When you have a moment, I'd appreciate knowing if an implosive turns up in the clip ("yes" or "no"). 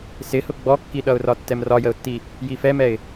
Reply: yes